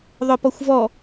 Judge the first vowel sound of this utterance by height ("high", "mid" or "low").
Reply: mid